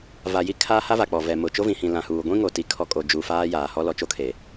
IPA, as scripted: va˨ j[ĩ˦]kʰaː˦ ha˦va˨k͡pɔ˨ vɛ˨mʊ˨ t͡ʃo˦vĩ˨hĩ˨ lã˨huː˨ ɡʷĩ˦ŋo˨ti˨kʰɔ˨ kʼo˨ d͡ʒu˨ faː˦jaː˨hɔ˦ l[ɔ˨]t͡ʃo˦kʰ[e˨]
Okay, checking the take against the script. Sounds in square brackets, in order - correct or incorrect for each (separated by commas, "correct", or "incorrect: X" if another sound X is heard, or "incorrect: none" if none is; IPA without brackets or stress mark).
incorrect: i˦, correct, correct